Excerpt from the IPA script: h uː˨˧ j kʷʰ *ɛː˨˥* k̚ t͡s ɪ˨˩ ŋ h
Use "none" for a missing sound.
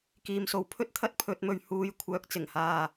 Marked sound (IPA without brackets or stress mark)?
œː˨˥